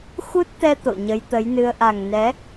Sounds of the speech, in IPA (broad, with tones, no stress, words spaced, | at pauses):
xu˦˥t̚t̪ɛ˧ t̪o̰˧˨ɲə˨˦jt̪ə˨˦jnɨ˧ə̯ ʔa˨˩ŋnɛ˨˦